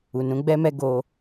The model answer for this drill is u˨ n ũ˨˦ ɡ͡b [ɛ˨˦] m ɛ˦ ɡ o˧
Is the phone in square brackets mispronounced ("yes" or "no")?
yes